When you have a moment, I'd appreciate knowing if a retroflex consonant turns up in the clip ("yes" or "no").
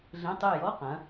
no